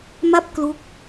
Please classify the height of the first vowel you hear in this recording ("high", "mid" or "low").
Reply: low